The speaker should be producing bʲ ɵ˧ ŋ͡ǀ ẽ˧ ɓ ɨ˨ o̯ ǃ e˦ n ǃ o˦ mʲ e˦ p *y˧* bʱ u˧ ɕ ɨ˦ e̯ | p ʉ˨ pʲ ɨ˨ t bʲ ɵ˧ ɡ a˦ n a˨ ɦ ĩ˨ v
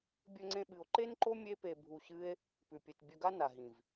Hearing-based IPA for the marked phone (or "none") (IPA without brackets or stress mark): e˧